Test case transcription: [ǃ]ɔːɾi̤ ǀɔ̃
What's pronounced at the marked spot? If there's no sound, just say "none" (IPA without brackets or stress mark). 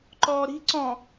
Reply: ǃ